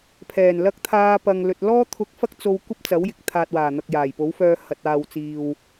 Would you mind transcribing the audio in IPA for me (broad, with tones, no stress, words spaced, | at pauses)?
pʰɛː˨˩n lɐ˧k̚t̪ʰaː˧ pɐ˨ŋ lɵ˨t̚lɔː˥ t̪ʰʊ˧k̚fɐ˥k̚t͡so˧w kʷɐ˥p̚t͡sɐ˨˥w jɪ˨k̚t̪ʰaː˨t̚waː˨˩ n̪ɐ˨k̚jaː˨˩jpo˨˥wfœː˧ hɐ˧t̚ aː˨wt͡siː˨w